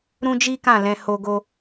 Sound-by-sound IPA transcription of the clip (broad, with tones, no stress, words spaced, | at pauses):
ɾũ˦d͡ʒi˦kã˦˨lɛ̃˧ ho˧ɡo˧